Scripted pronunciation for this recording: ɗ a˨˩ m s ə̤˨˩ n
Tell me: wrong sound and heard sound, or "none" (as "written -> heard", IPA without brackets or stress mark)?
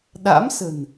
a˨˩ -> a̰˧˥